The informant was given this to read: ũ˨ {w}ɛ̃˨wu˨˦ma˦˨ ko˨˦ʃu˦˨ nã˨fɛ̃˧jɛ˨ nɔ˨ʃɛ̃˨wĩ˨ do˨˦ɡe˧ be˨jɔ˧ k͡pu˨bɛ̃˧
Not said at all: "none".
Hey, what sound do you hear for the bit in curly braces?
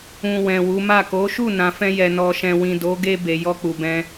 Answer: w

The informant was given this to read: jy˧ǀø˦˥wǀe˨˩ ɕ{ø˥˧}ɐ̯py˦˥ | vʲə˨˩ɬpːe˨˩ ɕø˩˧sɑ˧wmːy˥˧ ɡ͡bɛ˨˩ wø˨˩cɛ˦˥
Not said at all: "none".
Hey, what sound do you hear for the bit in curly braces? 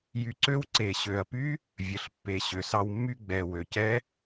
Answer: ø˨˩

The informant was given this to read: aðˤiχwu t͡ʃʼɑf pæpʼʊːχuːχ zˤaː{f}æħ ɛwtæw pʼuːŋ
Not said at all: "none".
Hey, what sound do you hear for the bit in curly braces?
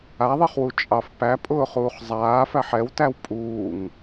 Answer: f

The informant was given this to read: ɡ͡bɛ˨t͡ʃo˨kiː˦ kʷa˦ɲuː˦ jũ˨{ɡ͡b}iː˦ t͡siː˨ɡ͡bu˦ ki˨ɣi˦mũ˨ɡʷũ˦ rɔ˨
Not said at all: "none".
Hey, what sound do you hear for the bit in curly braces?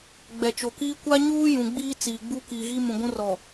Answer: ɡ͡b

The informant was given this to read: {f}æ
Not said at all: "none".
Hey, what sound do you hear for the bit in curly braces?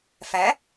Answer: f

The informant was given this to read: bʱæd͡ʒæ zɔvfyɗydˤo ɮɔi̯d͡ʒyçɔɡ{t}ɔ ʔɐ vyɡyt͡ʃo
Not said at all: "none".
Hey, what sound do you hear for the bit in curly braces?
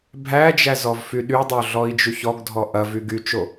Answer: dʱ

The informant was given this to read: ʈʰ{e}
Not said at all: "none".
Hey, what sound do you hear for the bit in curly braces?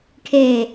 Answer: e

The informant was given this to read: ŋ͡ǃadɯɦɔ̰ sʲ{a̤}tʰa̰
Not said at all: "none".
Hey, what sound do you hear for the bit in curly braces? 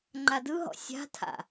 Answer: a̤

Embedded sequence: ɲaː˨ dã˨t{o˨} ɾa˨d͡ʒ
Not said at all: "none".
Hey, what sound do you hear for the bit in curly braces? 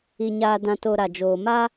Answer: o˨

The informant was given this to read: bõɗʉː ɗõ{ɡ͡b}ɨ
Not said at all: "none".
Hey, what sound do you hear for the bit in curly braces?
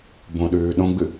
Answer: ɡ͡b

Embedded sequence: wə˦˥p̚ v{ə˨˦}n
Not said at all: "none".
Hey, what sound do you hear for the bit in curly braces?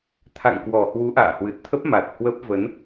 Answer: ə˨˦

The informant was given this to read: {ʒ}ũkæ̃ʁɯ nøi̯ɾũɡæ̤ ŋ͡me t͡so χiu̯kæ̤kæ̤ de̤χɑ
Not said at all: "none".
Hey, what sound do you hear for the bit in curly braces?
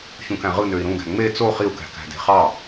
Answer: ç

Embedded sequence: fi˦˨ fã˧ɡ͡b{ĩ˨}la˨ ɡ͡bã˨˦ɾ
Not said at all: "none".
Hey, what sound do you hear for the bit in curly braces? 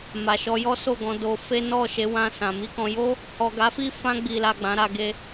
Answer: i˨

